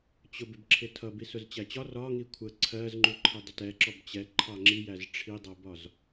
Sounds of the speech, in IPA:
t͡ɕ ʊ b ɪ b ǁʰ ɪ tʰ ʌ b i s ʊ z t͡ɕ æ t͡ɕ ɒ r ɒ ŋ i kʷʰ ə ǀʰ ɜ z ŋ͡ǃ u ǃʰ ə dˤ ɪ t ɛ ǁ ɔ b t͡ɕ ɛ ǃʰ ɑ ŋ͡ǁ i j æ z ʈ͡ʂʰ i dˤ ʌ b ɒ z

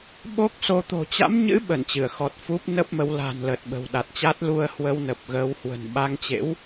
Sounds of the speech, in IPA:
ɓ o˦˥ k̚ s o˧ t̪ o̤˨˩ t͡ɕ a̰˧˥ m ɲ ɨ̰˧˥ ɓ ə˧˩ n t͡ɕ ɨ˧˩ ə̯ x ɔ˨˩ t̚ f u˦˥ p̚ n ə˦˥ p̚ m ə˨˦ w l a̤˨˩ n l ə˨˩ t̚ ɓ ə̤˨˩ w ɗ a˨˩ t̚ t͡ɕ a˦˥ t̚ l u˧ ə̯ h w ə˧ w n ə˨˩ p̚ ɣ əː˨˦ w h w ə̤˨˩ n ɓ a˧ ŋ t͡ɕ ḛ˧˥ w

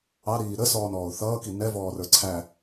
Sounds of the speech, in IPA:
ɑ ɾ iː ɾ ə s ɔː n ɔː ʊ̯ θ ʌː k i n ɛ v ɔː r ə˞ ǀʰ æ

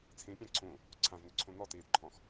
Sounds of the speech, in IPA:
t͡sʰ ĩ pʲ ã ǀʰ ũ | ǀʰ ã v n ʏ ǀʰ ũ n ɔ t iː d ǃʰ ɔ̃ x

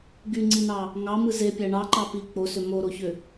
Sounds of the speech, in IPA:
ɡ y ŋ͡ǀ i n ɑ | ŋ ɑ m ɯ z e pʲ æ ɳ ɑ ǃ ɑ p i k͡p o s ø m o ɾ o ç ø

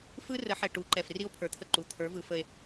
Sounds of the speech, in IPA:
f ɯ˦ r ə˨˦ ħ ɛ˨ ʈ u˨˦ ǃ ɛ˨ f r i˦ o̯ pʰ ə˞˨ t̪ʰ ə˦˨ ǃ u˨ t̪ʰ ə˞˨˦ v ɯ˨ f ə˨ e̯

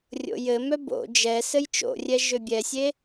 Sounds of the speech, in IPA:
rʲ o̰ j ɘ m œ b o̰ d͡ʒ ɛ s ɘ j t͡ʃ o̰ rʲ ɛ ʒ ʏ bʲ ɛ sʲ e

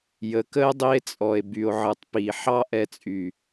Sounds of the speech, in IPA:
j ə˨ k ə˦ e̯ dˤ i˧ e̯ t͡sʼ ɔ˨ e̯ b y˨ o̯ ʕ ɨ˨ tˤ p i˨ ħ ɑ˦ ʔ ɛ˧ t͡sʼ y˨

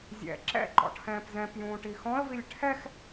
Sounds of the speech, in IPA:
zʲ ɛ̰ ǁ ɛ̰ ǃ ɔ̰ ʈʰ ɛ̃ː p z ɛ̃ p j ũː ʈ i x ɔ̃ ə̯ v i lʲ ʈʰ ɛ x

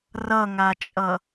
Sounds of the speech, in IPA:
r ʌ ŋ a t͡ʃʼ ʌ

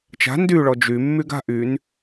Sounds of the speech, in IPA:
t͡ʃ a̤ n d y ɭ ɔ d͡ʒ y mː y ɡ a̤ ʔ y n

